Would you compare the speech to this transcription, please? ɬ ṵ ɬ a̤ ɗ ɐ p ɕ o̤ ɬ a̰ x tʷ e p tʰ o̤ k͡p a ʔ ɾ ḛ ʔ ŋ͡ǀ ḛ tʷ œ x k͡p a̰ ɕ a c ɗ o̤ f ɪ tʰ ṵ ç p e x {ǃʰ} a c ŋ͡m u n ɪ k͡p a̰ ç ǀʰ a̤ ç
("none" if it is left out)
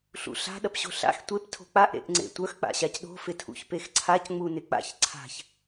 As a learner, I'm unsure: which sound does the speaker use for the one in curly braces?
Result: ǀʰ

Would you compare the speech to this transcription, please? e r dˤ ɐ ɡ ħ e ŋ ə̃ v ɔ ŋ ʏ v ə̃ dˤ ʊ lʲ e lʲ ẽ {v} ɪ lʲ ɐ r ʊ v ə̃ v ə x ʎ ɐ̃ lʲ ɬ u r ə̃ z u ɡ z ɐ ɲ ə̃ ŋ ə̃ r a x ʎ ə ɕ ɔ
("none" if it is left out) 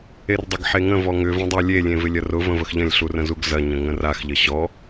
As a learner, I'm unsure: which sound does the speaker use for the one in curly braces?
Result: v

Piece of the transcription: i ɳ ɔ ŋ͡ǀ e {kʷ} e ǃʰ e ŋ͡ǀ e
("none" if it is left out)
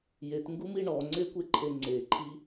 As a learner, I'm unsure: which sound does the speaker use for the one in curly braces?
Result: kʷ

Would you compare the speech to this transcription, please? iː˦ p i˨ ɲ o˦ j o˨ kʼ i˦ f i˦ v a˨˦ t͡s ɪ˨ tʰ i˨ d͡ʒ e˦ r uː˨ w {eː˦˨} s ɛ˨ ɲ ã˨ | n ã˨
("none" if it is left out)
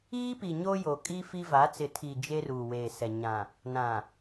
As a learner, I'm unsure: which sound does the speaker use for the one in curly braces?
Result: eː˨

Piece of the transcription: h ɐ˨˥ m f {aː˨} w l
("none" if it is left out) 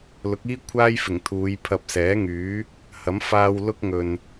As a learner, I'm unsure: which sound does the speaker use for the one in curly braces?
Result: aː˧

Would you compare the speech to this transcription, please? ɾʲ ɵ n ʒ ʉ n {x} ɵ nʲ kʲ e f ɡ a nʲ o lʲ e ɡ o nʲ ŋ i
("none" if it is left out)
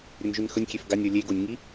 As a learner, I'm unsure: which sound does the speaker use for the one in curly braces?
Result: x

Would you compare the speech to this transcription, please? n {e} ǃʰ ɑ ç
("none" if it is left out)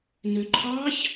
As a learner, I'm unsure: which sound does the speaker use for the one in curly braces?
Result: ø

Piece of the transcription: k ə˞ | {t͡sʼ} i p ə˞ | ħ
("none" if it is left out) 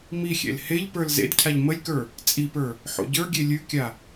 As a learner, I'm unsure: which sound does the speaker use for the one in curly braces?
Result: t͡sʼ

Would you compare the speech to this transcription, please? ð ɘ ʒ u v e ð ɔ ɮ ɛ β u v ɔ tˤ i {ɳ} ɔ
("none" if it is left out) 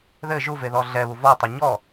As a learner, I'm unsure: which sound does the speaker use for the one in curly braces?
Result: ɲ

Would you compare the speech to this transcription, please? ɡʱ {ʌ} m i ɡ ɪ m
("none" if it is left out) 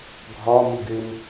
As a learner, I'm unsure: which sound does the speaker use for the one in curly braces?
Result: ɒ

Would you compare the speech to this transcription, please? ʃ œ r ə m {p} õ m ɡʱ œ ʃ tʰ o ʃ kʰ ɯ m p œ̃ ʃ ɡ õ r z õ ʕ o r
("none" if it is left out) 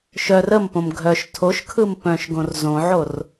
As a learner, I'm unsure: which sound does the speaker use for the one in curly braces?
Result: p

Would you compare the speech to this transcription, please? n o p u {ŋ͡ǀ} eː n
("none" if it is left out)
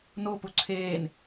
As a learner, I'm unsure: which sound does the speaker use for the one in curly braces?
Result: ǀʰ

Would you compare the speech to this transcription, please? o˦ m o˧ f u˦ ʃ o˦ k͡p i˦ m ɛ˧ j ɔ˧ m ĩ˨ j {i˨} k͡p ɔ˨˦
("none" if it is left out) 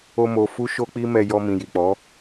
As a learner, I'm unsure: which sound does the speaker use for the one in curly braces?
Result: i˨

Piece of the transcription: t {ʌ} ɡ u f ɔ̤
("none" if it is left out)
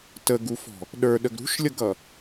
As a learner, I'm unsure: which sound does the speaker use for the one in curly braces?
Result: ə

